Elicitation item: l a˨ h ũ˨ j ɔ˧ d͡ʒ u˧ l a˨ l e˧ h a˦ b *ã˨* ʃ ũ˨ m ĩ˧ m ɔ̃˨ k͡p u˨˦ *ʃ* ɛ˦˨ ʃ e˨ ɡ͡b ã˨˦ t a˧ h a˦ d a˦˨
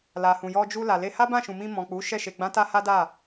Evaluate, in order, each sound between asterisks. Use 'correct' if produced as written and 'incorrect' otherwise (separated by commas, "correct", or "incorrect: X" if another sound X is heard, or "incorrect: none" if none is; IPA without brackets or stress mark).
incorrect: ã˦˨, correct